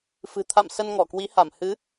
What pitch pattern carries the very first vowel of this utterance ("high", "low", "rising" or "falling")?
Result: low